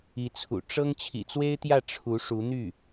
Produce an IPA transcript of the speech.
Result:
i˧˥ t͡sʰ ṵ˨˩ ʈ͡ʂ ɤ˥ ŋ t͡ɕʰ ḭ˨˩ t͡s w e˥ ɪ̯ t̪ j ä˥˩ ʈ͡ʂʰ u˧˥ ʂ u˧˥ n̪ y˥˩

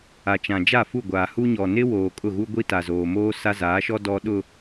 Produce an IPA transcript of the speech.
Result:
a˨ t͡ʃ ã˨ d͡ʒ a˦˨ f u˦˨ ɡʷ aː˨ h u˦ ɲ ɔ˨ n ɪ˦ w oː˨ kʼ ʊ˦˨ ɣ u˦ ɡʷ i˦ t a˨ z oː˨ m oː˦ s a˦ z aː˨˦ ʃ ɔ˦ d ɔ˦ ɗ ʊ˨

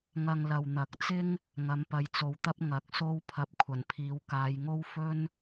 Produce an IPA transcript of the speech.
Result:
ŋ ɐ˧ ŋ l ɐ˨ w n̪ ɐ˨˥ k̚ t͡s ɪ˥ ŋ | ŋ ɐ˨˥ m p ɐ˨˧ j t͡s o˨ w t̪ ɐ˥ p̚ ŋ ɐ˨˥ k̚ s o˥ w pʰ ɐ˧ p̚ kʷʰ ɐ˨˩ n pʰ iː˨˥ w k aː˨˧ j ŋ o˥ w f ɵ˥ n

